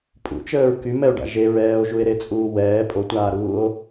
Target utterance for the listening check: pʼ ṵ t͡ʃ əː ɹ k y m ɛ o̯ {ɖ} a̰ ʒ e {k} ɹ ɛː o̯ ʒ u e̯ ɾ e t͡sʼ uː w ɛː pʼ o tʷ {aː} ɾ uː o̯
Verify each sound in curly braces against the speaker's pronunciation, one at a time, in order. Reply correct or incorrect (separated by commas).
correct, incorrect, correct